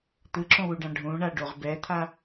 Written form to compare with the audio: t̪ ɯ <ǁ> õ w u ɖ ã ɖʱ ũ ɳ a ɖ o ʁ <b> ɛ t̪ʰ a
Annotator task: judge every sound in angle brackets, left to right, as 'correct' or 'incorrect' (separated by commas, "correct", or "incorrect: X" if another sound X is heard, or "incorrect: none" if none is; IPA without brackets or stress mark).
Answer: correct, correct